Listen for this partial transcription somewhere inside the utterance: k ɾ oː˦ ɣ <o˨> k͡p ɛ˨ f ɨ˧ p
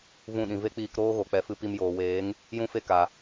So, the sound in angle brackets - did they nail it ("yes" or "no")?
yes